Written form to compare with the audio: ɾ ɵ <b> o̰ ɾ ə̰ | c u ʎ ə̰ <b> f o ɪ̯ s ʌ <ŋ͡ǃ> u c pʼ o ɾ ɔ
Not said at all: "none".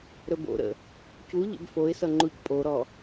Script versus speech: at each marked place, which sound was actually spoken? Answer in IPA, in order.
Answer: b, b, ŋ͡ǃ

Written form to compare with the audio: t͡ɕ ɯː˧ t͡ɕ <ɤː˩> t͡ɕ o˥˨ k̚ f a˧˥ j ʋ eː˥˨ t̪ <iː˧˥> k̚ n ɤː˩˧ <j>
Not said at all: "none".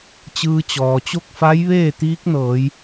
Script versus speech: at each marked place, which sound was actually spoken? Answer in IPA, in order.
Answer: ɔː˩, iː˧˥, j

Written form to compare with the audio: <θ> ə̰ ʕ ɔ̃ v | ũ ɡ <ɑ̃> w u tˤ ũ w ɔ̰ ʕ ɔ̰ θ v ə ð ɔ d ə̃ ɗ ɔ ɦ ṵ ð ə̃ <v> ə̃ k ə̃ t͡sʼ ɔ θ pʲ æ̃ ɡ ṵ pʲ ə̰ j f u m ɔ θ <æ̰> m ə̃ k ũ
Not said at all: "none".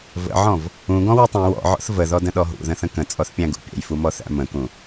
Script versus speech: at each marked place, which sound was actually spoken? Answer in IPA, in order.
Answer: v, ɔ̃, θ, æ̰

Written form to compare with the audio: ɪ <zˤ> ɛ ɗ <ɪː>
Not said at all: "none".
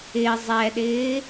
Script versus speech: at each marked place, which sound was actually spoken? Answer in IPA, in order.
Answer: zˤ, ɪː

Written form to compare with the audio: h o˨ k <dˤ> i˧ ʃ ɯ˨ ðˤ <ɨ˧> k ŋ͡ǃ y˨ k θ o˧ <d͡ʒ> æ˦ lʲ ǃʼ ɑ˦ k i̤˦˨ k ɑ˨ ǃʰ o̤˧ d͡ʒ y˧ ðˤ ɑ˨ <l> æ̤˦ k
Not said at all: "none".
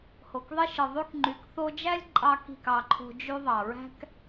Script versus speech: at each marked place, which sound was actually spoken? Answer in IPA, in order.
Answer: ðˤ, y˧, d͡ʒ, ɹ

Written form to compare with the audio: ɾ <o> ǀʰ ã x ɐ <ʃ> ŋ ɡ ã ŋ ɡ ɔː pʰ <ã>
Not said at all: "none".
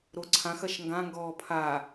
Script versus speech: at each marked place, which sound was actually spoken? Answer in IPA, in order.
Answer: o, ʃ, a

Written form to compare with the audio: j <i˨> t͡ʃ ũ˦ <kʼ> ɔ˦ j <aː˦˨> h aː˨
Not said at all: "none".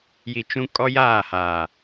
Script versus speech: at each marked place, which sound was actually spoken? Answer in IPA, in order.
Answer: i˨, kʼ, aː˦˨

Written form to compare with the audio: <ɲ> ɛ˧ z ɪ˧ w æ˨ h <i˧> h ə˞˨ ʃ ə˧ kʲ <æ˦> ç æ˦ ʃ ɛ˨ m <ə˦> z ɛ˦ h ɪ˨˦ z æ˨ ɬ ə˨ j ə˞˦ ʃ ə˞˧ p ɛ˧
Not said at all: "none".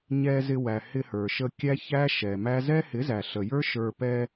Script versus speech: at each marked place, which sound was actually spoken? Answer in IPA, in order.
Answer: ɲ, ɪ˧, æ˦, æ˦

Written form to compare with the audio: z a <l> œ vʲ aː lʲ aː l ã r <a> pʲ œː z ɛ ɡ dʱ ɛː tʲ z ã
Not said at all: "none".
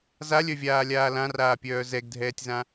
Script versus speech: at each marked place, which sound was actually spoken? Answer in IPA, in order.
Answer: lʲ, aː

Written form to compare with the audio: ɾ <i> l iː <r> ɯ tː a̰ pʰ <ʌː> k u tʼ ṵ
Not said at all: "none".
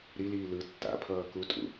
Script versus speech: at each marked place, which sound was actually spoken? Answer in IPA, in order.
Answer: i, l, ʌː

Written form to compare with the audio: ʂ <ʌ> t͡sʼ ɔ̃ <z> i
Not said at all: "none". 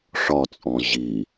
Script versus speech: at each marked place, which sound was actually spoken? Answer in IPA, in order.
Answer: ɒ, ʑ

